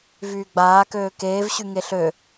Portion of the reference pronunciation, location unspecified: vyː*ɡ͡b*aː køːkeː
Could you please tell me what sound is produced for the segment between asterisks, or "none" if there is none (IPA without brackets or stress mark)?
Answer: ɡ͡b